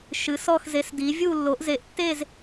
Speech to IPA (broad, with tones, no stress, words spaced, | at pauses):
ʃɨ˨˥sɔ˥˧xze˨˥sdi˨˥ vʲu˥˧lːo˨˥ʔ ze˨˥ʔtːe˥˧z